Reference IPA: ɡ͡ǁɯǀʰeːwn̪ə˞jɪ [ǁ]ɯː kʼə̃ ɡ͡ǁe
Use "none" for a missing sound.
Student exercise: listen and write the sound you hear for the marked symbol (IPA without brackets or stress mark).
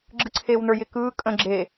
k